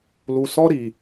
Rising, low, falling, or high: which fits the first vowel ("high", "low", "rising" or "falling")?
low